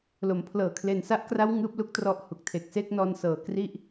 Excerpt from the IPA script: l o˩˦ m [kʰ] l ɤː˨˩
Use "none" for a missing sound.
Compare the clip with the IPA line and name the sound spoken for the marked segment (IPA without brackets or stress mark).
pʰ